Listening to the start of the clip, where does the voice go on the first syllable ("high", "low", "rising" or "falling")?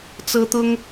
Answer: high